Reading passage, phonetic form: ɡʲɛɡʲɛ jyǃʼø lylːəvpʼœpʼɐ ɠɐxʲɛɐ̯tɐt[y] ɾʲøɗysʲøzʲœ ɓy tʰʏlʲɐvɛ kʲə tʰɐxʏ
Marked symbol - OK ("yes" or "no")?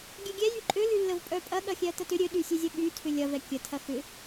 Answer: no